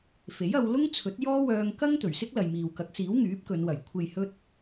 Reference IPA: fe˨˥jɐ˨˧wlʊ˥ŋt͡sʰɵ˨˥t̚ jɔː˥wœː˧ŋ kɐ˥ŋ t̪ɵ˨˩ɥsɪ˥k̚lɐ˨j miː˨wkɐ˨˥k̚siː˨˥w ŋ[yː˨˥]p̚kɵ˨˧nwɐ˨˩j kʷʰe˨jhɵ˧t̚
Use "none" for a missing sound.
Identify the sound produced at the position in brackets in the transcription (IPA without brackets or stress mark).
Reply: yː˨˥